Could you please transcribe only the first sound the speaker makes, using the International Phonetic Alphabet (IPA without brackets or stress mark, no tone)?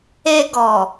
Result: e